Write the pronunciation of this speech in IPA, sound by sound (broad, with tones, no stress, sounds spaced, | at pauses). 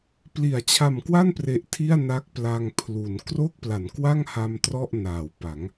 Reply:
p l i˩˦ a̯ t͡ɕʰ a˨˩ m k w a˥˩ n p r e˨˩ ʔ tʰ i˥˩ a̯ n a˦˥ k̚ p l a˧ ŋ pʰ l u˩˦ n k r o˥˩ k̚ p l a˩˦ n k w a˥˩ ŋ h a˧ m t r ɔ˥˩ ʔ n aː˩˦ w p a˩˦ ŋ